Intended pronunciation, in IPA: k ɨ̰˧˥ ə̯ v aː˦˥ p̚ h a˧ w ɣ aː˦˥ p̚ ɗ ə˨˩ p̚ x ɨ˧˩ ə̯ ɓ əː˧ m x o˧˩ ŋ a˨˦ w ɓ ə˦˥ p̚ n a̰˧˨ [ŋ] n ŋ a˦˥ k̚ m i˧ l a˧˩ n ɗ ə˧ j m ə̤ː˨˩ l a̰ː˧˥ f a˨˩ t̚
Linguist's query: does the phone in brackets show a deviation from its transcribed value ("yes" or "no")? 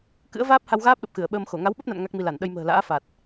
yes